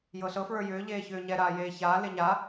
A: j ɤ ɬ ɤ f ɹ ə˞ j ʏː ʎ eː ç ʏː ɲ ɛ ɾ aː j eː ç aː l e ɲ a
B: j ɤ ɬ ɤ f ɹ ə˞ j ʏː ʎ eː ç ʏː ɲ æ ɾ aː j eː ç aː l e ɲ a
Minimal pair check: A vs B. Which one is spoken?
A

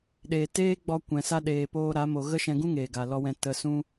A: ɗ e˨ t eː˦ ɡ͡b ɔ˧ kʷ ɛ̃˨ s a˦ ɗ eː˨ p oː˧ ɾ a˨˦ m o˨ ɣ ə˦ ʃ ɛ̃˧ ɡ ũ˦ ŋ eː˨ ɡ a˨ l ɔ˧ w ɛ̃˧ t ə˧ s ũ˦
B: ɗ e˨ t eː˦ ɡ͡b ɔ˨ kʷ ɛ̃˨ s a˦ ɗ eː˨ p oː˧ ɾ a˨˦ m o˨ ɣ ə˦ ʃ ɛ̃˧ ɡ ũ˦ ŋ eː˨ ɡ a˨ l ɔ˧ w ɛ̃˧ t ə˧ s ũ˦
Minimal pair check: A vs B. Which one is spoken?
A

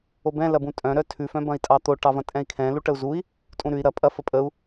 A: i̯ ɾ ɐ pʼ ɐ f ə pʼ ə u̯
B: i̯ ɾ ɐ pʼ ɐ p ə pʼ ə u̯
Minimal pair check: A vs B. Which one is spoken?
A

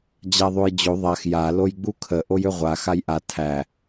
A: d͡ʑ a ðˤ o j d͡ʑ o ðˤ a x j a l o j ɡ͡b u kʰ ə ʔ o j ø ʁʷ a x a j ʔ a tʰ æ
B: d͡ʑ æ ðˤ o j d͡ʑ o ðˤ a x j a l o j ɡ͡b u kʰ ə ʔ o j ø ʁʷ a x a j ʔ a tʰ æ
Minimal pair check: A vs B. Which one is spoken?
A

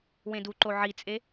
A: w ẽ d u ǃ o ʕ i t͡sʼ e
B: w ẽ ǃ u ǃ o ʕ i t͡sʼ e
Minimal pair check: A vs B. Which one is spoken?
A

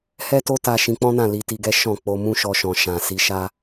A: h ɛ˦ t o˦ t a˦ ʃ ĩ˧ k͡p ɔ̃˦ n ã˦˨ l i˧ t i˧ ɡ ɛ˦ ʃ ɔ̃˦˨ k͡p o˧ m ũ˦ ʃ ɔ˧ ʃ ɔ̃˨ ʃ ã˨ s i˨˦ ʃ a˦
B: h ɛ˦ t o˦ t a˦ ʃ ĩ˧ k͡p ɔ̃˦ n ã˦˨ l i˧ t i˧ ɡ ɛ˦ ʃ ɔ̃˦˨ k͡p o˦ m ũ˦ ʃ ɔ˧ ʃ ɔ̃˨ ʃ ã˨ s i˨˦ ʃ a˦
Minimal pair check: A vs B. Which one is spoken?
A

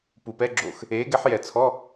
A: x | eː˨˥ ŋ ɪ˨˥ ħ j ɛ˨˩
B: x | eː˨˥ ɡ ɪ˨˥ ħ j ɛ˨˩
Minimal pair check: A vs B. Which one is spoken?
B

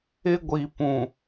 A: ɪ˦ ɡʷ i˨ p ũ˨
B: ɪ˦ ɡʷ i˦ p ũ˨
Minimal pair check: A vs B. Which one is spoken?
A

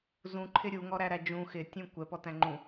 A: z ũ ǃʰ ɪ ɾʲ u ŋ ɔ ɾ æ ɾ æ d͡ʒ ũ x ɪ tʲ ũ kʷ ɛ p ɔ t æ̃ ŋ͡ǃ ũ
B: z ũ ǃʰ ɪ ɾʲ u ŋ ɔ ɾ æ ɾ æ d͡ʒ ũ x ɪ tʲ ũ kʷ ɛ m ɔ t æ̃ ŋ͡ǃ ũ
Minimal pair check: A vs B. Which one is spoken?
A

